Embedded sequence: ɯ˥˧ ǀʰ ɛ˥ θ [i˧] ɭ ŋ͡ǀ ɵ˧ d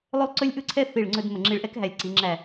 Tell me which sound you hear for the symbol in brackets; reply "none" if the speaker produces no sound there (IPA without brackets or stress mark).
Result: i˧˩